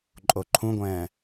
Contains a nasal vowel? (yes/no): yes